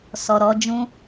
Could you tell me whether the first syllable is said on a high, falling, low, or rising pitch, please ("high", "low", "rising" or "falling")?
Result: low